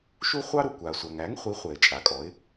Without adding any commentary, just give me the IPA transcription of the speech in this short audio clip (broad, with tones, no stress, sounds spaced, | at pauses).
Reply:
ʃ u˥ χʷ ɑ˥ ɾ u˩ kʷ a˩ sʷ a˩ ŋ æ˩˥ ŋ χʷ i˩˥ χʷ ɛ˩ ɪ̯ t͡ʃʼ a˩ kʼ ɔ˩˥ ɪ̯